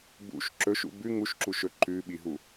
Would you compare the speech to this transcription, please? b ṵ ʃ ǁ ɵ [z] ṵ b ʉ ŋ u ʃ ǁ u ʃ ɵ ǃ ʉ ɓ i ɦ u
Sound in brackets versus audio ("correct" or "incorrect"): incorrect